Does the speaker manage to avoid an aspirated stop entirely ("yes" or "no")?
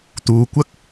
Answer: yes